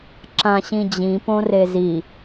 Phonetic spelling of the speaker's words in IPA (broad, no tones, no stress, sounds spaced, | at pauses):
ǁ ã ɕ ĩ d͡ʑ ĩ p õ r e z i